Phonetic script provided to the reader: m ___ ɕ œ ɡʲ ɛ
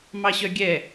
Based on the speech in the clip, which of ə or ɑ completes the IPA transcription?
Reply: ɑ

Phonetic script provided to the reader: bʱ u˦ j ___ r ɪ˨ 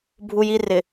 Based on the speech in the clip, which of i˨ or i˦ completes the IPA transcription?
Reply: i˦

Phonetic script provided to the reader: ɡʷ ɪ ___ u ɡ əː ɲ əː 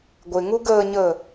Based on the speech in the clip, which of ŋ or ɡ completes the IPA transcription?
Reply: ŋ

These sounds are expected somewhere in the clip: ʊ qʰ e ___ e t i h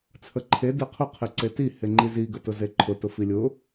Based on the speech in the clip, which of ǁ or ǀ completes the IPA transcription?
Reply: ǀ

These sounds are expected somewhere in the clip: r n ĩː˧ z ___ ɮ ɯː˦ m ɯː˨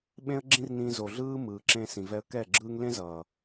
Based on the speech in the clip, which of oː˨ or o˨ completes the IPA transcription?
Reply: o˨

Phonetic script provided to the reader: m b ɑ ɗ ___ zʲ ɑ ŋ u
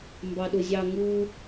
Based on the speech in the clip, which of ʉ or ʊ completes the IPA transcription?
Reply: ʊ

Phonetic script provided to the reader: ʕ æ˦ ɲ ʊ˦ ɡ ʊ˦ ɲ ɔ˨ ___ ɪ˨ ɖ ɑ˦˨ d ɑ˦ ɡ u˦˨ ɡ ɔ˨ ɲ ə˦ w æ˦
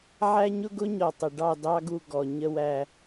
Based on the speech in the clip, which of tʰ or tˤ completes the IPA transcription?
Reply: tˤ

